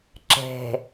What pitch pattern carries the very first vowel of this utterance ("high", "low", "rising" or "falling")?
low